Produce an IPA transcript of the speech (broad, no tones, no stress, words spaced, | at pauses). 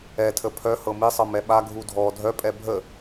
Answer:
ɛ tʰəpʰœhɤ misˤɤ mɛɓa ɡʱudʱɔ dʱœpʼɛ bʱə